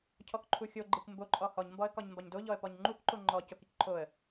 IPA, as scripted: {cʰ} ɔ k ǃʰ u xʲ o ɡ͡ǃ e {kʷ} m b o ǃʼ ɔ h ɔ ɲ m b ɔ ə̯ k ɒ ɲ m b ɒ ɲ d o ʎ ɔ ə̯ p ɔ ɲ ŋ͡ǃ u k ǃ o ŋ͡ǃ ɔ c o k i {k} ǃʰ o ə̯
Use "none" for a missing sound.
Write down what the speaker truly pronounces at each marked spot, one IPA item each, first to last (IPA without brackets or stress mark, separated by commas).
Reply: cʰ, kʷ, k